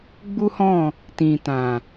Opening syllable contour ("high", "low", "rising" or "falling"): high